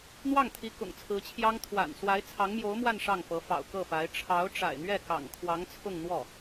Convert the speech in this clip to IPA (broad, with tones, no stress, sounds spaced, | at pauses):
n̪ w ɑ˥˩ ŋ t̪ʰ i˧˥ k ʊ̰˨˩ ŋ t͡sʰ ɹ̩˧˥ t͡ɕʰ j ɑ˥ ŋ t̪ʰ w a̰˨˩ n s w a˧˥ ɪ̯ t͡sʰ ɑ˧˥ ŋ m j o˧˥ ʊ̯ m w a˥˧ n ʂ ɑ˥˩ ŋ f ɤ˧˥ f ɑ̰˨˩ ʊ̯ k ɤ˥˩ f a˧˥ ɪ̯ ʈ͡ʂʰ ɑ˧˥ ʊ̯ ʈ͡ʂ a̰˨˩ ɪ̯ n̪ ɥ ɛ˥˩ k ɑ̰˨˩ ŋ kʰ w ɑ˧˥ ŋ t͡sʰ ʊ˥˧ ŋ n̪ w ɔ˥˩